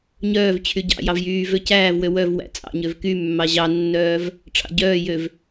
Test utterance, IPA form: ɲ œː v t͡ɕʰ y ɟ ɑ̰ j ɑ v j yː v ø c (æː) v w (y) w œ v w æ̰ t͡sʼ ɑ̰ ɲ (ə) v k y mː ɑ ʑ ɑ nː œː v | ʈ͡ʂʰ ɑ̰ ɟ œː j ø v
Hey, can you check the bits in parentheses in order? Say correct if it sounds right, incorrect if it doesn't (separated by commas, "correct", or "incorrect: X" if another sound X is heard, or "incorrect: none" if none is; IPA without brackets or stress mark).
correct, incorrect: ø, incorrect: ø